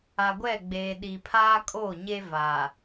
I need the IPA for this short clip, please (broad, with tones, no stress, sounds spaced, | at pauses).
a˨ ɡʷ ɛ˦˨ ɡ͡b eː˨ ɗ i˨ pʰ aː˦ kʼ oː˦˨ ɲ e˦ v a˨